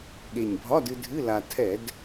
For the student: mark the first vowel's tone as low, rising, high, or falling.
low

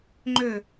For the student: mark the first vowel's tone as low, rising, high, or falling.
falling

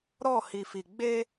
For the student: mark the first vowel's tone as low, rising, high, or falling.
falling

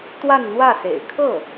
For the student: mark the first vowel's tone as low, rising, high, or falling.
falling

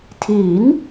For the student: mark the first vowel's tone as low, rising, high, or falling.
rising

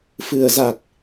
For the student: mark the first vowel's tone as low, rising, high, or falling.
low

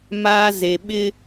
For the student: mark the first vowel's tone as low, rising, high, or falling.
high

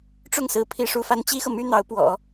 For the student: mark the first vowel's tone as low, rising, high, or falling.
falling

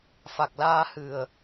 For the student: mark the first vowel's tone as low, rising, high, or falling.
low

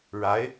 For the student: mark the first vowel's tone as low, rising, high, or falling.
rising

